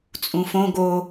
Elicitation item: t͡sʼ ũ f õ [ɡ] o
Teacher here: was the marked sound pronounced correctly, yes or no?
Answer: yes